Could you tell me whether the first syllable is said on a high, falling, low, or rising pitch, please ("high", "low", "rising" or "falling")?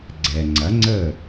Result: low